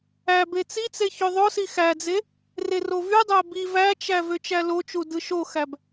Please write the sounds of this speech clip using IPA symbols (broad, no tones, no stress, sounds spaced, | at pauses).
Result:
æ b e t͡s i t͡s e ç ø ðˤ o s i x æ d͡z e | r e r o v y dˤ æ b i v æ t͡ʃ æ v ø t͡ʃ æ l o t͡ʃ u d ɯ ʃ o x æ b